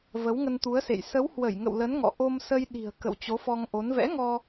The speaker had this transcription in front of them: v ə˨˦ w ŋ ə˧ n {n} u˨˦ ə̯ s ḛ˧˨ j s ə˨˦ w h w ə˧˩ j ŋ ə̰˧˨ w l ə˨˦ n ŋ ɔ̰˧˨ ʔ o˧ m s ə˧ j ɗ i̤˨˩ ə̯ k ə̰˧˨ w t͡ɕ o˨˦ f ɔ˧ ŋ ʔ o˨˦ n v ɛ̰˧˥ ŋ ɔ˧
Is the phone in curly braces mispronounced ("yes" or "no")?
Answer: yes